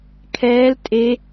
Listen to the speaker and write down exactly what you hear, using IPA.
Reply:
kʰɛːl tʼe

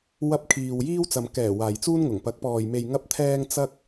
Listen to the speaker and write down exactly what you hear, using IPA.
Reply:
wɐ˧p̚kʰiː˨w jiː˥w t͡sɐ˨mkɛː˨˩ waː˨jt͡suː˥nŋʊ˨˩ŋ pɐ˨˥k̚pɔː˨j me˨j ŋɐ˥p̚t̪ʰɛː˥ŋ t͡sɐ˥k̚

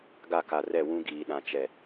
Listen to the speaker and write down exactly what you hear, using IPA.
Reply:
ɡa˦˨ka˨rɛ˦˨ wũ˦ɡiː˨ɗã˨ t͡ʃɛ˨

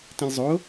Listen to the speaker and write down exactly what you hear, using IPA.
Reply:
tĩlʲzˤo

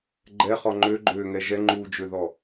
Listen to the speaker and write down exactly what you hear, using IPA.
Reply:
ɡ͡ǃɛχɔ ŋ͡ǃøɡ͡ǃøːŋɛ ʒɛŋ͡ǃuːd͡ʒøðɔ

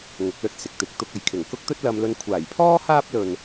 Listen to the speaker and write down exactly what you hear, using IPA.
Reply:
ŋʊ˨˥k̚lɵ˧t̚sɪ˨k̚ t̪ɪ˨k̚t̪ʊ˧k̚ɐ˨jkʰɪ˨˩ŋ kʊ˥k̚t̪ɵ˥t̚lɐ˧mlɵ˧n kʷʰaː˨˩jpʰɔː˥ haː˥p̚lɵ˨n

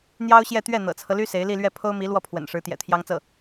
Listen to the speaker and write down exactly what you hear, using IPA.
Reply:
n̪jɑ˥ʊ̯ɕjɛ˥˧t̪ɥɛ˥˩ n̪ɤ̰˨˩t͡sʰɤ˦ly˥ se˧˥ɪ̯li˥˧lɥɛ˥˩ pʰo˥ʊ̯mi˧˥ lwɔ˥˩pʰwə̰˨˩n ʂɻ̩˧˥t̪jɛ̰˨˩t̪ʰjɑ˥ŋt͡sɤ˥˩

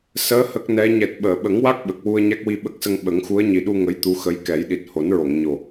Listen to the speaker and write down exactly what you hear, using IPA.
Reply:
səː˧˥ hə˦˥k̚nɛ˧˥ ɲɛ˨˩t̚ɓəː˨˩˨ ɓə˨˩˦ŋwa˦˥k̚ ɓə˨˩k̚ wu˧ə̯ɲa˦˥k̚ wi˧ɓə˦˥k̚sə˧ŋ ɓə˨˩˦ŋxu˧˥ə̯ɲi˨˩ɗu˧ ŋə˧˥jt̪u˧˥xə˧˥j kɛ˨˩˦jɗi˨˩t̚ ho˨˩˦nɹo˨˩˨ŋɲo˨˩

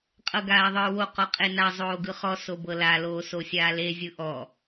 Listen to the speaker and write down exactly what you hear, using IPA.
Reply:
qʼɤɡaːðˤɯːwo qɔqʼena zˤoːɡɯχɔ sobɤla loːsosʲaːle zʲɯʔɔ

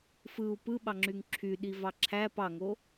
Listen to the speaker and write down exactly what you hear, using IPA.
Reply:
fɯu̯ pɯɓɑŋ͡ǁyŋ ǁʰy ɗivɑǁʰæ pɑŋo

